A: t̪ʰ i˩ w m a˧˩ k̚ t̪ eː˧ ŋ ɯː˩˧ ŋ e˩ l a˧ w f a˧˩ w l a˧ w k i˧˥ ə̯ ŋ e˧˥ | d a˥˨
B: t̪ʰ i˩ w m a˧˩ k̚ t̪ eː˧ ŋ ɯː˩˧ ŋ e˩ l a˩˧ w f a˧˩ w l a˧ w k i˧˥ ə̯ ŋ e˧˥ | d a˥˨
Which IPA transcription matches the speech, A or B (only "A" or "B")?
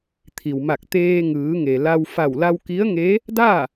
A